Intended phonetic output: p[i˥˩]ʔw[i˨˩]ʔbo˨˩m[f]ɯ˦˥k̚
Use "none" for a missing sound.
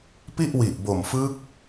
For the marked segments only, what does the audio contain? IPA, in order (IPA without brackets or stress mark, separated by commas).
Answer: i˥˩, i˨˩, f